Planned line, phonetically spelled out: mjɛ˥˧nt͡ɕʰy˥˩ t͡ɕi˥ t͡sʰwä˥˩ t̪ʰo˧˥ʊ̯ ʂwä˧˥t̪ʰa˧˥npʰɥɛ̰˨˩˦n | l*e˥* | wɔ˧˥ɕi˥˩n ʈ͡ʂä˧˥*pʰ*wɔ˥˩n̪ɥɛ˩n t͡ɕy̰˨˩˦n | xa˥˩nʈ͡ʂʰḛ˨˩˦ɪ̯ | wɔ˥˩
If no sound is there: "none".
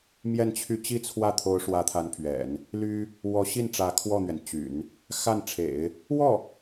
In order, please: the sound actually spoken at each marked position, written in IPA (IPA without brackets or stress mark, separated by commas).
y˥, kʰ